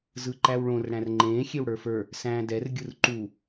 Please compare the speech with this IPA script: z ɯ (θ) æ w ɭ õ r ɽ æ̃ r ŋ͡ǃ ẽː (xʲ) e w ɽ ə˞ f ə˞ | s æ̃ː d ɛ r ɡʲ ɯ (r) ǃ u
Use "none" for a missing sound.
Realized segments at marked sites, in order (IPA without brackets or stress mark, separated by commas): ǃ, xʲ, r